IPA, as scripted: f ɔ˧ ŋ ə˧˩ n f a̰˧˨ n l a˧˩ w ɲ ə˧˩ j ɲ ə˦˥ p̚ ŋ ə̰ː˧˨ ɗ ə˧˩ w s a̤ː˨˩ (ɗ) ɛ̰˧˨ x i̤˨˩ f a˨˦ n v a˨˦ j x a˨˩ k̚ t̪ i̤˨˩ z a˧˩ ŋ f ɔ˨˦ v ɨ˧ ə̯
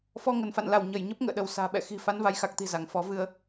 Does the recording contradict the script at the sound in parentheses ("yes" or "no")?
yes